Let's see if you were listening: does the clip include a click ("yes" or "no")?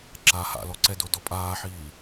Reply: yes